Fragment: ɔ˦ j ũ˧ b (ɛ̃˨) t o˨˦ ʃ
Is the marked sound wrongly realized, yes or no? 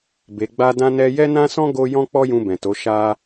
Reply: no